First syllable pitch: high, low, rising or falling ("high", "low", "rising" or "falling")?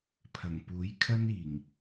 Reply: low